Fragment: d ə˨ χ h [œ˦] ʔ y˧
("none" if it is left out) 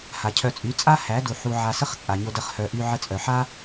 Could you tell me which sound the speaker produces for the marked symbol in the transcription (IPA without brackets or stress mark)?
œ˨